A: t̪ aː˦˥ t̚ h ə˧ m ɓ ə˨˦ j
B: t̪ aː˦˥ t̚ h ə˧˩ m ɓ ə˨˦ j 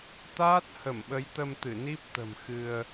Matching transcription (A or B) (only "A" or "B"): B